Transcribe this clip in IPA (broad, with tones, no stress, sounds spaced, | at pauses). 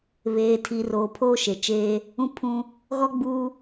β eː˨ tʰ i˨ r oː˨ pʰ oː˦ ʃ e˨ t͡ʃ eː˦ | ũ˦ pʰ ũ˦ | ɣ ɔ˦ ɡ͡b uː˦